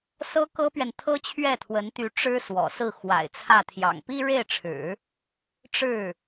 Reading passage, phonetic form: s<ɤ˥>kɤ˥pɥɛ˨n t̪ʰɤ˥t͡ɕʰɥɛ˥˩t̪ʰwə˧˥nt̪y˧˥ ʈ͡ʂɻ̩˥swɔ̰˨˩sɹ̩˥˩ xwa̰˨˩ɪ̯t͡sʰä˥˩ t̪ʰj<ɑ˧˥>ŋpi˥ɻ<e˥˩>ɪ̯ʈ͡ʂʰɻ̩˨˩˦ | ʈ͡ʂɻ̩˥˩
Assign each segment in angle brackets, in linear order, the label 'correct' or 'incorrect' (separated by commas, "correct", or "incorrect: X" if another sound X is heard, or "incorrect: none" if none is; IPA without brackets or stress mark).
correct, incorrect: ɑ̰˨˩, correct